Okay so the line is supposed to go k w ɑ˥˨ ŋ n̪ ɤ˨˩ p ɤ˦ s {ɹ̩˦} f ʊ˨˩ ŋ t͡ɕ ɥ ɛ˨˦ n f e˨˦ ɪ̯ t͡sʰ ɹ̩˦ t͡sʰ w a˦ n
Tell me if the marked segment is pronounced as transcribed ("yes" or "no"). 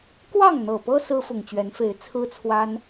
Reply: yes